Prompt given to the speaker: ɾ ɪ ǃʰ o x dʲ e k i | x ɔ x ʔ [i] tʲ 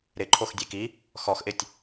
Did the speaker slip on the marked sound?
yes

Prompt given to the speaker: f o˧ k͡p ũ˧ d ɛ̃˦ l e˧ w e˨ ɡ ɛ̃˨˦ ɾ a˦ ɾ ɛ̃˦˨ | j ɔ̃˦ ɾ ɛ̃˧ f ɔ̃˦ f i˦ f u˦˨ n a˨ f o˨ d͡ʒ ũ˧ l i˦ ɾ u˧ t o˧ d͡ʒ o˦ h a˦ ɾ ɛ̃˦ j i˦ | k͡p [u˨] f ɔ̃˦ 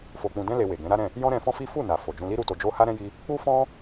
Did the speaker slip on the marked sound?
yes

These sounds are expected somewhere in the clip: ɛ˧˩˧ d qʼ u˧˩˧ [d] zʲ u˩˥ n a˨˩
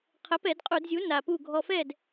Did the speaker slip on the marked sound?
no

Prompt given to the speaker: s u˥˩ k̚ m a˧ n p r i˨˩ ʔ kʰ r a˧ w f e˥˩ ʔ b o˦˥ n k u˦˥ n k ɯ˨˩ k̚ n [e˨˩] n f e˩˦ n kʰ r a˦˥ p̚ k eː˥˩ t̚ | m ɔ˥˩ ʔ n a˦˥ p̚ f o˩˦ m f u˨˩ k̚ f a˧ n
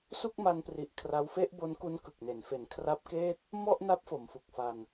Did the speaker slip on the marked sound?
yes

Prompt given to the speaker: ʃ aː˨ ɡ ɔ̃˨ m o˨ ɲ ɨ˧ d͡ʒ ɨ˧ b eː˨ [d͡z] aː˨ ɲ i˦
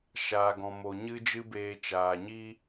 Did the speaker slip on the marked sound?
yes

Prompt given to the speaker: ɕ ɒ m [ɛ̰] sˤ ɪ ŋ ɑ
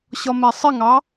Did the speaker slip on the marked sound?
yes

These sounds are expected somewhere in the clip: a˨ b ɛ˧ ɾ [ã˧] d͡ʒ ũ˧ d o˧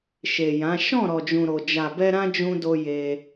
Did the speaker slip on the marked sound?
no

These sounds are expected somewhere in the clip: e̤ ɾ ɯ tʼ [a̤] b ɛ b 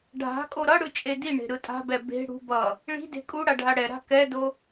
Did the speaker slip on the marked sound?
no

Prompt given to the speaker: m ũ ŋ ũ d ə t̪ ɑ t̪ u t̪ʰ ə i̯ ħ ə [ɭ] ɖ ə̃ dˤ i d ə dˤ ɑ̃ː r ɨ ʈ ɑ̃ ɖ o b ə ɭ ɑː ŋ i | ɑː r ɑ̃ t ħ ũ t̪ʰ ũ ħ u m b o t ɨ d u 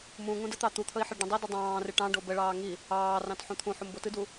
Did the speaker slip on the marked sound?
no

